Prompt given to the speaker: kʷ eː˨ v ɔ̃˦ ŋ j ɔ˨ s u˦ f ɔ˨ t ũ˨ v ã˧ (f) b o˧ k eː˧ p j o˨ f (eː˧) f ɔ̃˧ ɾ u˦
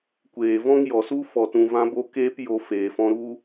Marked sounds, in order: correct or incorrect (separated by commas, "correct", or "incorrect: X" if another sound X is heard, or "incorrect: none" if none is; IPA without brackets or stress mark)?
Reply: incorrect: none, incorrect: eː˨